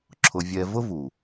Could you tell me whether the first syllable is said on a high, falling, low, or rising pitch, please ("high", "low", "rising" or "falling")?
low